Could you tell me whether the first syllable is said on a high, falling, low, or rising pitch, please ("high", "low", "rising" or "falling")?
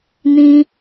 high